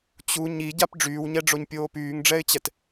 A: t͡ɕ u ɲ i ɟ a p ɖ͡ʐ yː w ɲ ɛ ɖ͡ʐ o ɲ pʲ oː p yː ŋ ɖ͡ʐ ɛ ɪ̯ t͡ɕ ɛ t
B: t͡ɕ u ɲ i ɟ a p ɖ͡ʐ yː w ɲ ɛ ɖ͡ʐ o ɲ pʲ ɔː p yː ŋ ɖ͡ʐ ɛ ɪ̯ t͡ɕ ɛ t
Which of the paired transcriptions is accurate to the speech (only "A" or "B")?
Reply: A